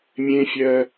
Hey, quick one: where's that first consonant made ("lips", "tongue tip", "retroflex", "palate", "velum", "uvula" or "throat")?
lips